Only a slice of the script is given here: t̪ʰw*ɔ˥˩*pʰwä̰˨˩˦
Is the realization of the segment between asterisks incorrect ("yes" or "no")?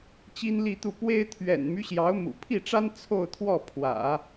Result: no